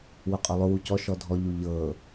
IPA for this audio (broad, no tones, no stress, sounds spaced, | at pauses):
w ʊ qʼ ʊ lˠ ʊ w u c ɔ ʃ ɔ dʱ ɔ ʎ u ʎ ɤ